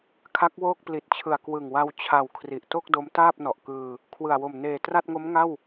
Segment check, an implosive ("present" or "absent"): absent